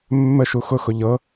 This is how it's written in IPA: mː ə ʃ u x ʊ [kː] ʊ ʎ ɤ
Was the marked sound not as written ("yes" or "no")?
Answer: yes